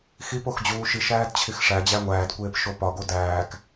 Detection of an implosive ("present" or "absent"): absent